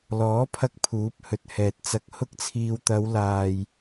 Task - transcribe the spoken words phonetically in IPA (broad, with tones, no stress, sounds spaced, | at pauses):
l ɔː˨˥ pʰ ɐ˧ k̚ pʰ uː˨˥ p̚ h ɵ˨ t̚ h ɛː˨ t̚ t͡s ɐ˧ k̚ h ʊ˥ k̚ t͡sʰ iː˧ w t̪ ɐ˨˧ w l aː˨ j